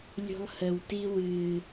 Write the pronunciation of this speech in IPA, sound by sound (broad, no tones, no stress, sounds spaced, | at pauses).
lʲ ṳ lˠ h ə w t i w ɨ